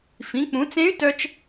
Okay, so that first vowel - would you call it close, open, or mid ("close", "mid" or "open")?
close